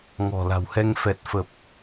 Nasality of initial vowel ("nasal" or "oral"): oral